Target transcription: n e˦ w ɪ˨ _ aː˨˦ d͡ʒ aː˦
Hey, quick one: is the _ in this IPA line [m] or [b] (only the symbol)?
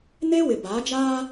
b